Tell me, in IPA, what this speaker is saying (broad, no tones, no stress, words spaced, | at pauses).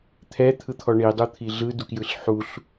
t̪ʰɛt̪ʰɯt̪ʰɔ ɳidˤut̪ʰi ɮɯdukjɯɬ ħuɬ